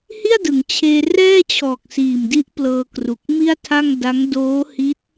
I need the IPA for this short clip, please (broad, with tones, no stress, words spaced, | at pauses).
hi˥˩a̯dɯ˩˦ŋt͡ɕʰeː˧ rɛː˥˩t͡ɕʰɔː˨˩k̚siː˨˩mdi˦˥ʔ plɤː˧kru˨˩k̚mi˥˩a̯tʰa˥˩ŋ da˦˥ŋ doː˦˥hi˦˥t̚